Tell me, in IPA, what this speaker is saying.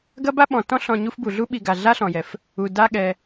ɡ ɐ˥ b a˥ ɓ ɔ̃˨ t ɔ̃˥ ɬ ɔ̃˨ ɲ u˦ f b u˩ ɮ u˥ ɓ i˨ ɡ a˩ ɮ a˥ ɬ ɔ̃˩ j ɛ˩ f | u˩ d a˦ ɠ ɛ˩

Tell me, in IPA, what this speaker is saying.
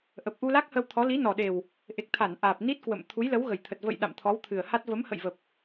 ʔ ə˨˩ p̚ ʔ u˧ l a˦˥ k̚ h ə˧ w t̪ʰ ɔ˨˦ l i˨˦ n ɔ˨˩ ɗ e˨˩ w | ʔ e˨˩ k̚ t̪ʰ a˧˩ n ʔ aː˨˩ p̚ n i˦˥ t̚ k w ə̰˧˨ m t̪ʰ u˨˦ j l ə˨˦ w ɣ ə˨˩ j t̪ʰ ə˨˩ t̚ v ə̰˧˨ j ɗ a̰˧˨ m t̪ʰ ɔ˨˦ w t̪ʰ ɨ˨˩ ə̯ h a˦˥ t̚ v ə˨˦ m h ə̰˧˨ j v ə˨˩ p̚

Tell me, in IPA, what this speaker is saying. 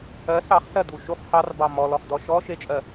ɜ s ɑ χ s ɜ d u ʃ u χ h ɑ r b ɑ m ɔ l ɔ χ d ɔ ʃ ɔ ʃ e t͡ʃʼ ɜ

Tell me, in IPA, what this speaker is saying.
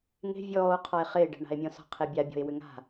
ŋ e̤ vʲ ɔː o̯ qʰ ɔ e̯ χ ɪː ɖ ɛ̤ ɳ a̤ e̯ mʲ ɔ̃ s ɔ̤ qʰ e bʲ a bʲ ɔ̤ e̯ w ʏ ŋ a̤

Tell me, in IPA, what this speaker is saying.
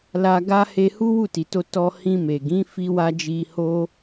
l a˧ ɡ a˦ h e˧ h u˦ w u˦˨ t i˨ t o˧ t ɔ˧ h ĩ˧ m e˨ ɡ ĩ˨˦ f i˦ w a˦ d͡ʒ i˧ h o˦

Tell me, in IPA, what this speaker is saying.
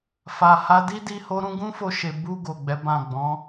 f a˨ h a˧ d i˦ d i˦ h o˦ ɾ ũ˦ ɡ ũ˦ f o˧ ʃ e˨ b u˧ ɡ o˨ ɡ͡b ɛ˨˦ b ã˦˨ ɡ͡b ɔ̃˨˦

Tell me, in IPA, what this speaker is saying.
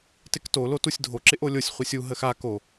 t ɪ k t o l o t u sʲ dʱ o ǁ ɪ ʔ o lʲ o sʲ χʷ e sʲ u ɦ ə x a k o

